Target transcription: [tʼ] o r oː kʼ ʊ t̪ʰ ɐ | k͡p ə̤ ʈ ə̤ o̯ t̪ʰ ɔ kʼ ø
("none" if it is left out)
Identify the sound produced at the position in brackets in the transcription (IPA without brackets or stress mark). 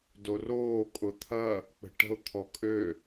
d